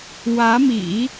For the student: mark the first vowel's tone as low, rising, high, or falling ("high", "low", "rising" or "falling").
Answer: rising